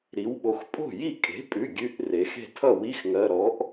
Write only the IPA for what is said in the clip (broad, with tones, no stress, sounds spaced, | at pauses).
ɾ i˩˧ w ɓ o˩˧ x pʼ o̤˥˩ j i˥˩ kʼ e̤˩˥ pʼ ʉ˩˧˩ ɡʲ ʉ˧˥˧ ʔ r e˩˧ x e̤˥˩ tʰ ʌ˥˩ w i˧˥˧ x ŋ ɜ˩˧˩ ɾ ɔ˩˥ ʔ